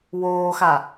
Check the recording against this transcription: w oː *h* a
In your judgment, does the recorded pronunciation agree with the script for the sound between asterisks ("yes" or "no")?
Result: no